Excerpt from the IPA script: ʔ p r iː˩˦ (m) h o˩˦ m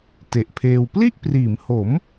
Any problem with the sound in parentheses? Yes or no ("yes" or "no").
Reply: no